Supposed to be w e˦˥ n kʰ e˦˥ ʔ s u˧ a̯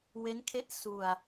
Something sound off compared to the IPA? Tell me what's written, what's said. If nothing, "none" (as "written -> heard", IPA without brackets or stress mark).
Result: none